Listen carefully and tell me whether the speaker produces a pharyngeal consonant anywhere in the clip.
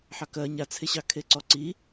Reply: yes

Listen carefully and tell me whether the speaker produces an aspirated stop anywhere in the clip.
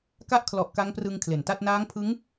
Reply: yes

